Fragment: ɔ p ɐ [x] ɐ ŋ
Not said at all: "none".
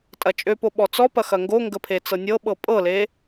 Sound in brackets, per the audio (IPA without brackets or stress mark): x